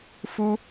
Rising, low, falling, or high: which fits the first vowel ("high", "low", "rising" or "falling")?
high